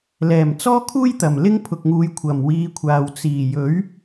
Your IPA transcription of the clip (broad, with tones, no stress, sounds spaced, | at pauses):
l ɛː˨˩ m t͡s ɔː˥ kʰ uː˥ j t̪ ɐ˨˩ m l ɪ˥ ŋ pʰ ʊ˨ k̚ ŋ uː˨˧ j kʷʰ ɐ˨˩ m w iː˨˧ kʷʰ aː˨ w t͡s iː˨˩ j ɵ˨˥ ɥ